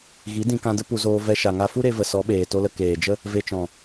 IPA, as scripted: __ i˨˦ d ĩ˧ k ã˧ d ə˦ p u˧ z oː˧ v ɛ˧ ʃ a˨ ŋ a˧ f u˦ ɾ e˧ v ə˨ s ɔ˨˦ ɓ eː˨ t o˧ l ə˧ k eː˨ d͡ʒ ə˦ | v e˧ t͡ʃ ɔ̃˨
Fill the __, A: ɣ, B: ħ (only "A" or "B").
A